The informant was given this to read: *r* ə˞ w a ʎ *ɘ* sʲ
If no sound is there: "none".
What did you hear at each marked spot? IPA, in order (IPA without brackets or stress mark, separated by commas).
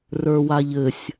r, ɘ